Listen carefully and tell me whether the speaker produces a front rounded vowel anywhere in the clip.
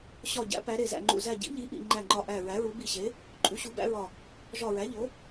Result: no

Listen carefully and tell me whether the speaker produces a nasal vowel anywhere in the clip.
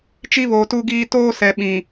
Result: yes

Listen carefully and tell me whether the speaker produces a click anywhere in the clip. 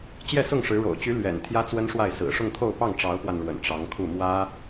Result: no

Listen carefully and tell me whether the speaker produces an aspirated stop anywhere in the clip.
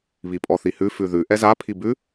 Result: yes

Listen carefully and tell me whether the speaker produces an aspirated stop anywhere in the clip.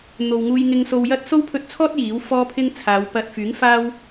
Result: yes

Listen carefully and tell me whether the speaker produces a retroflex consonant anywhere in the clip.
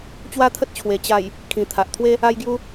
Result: no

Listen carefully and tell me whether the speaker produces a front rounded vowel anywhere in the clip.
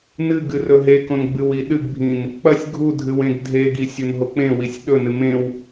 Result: no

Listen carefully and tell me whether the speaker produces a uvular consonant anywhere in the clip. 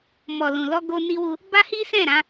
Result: no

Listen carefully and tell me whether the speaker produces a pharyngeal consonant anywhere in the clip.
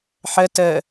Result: yes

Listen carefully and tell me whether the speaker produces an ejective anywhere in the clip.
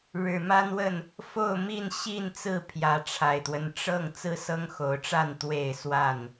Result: no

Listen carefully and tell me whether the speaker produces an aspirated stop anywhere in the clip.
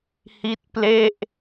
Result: no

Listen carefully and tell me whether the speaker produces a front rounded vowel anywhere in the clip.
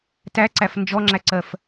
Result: no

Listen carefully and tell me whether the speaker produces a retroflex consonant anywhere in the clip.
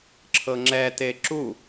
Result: no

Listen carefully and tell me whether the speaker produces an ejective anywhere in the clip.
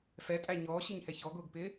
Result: yes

